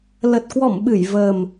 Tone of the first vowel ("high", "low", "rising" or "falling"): low